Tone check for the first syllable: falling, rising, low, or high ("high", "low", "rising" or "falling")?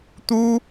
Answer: high